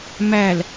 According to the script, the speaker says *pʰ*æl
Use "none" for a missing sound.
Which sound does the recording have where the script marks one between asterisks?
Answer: m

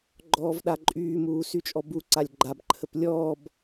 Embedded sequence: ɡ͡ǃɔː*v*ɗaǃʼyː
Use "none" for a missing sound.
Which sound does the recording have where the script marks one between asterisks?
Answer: v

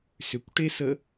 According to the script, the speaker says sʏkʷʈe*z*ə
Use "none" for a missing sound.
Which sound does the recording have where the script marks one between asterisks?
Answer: s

